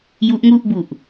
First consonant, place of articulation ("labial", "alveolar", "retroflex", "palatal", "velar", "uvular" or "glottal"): palatal